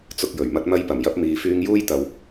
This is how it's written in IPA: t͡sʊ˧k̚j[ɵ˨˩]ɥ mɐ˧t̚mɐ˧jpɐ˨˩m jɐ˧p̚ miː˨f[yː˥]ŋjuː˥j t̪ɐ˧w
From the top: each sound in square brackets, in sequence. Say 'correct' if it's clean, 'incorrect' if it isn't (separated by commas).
correct, incorrect